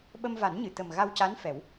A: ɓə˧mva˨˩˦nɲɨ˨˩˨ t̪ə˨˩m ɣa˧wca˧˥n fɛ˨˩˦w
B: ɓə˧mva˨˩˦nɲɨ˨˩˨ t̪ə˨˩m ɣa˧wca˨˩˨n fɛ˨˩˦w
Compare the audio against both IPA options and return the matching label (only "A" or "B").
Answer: A